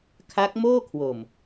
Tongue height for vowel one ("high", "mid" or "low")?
low